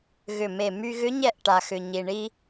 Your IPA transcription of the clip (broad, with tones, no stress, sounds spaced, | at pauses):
ɣ ʏ˧˩ m e˧˩ m y˧ ɣ ʏ˧˥ ɲ ɛ˥˩ ʔ ʈ a˩ x ʏ˩ ɲ i˩ ɳ i˧